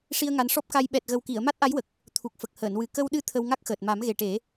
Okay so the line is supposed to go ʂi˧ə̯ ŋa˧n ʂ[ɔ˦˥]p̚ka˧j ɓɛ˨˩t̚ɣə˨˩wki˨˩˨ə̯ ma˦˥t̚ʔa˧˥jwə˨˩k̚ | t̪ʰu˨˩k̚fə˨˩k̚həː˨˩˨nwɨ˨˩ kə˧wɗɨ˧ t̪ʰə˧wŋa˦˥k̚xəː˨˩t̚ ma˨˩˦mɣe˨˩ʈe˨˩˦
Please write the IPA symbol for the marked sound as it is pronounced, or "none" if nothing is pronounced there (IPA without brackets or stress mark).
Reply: ɔ˦˥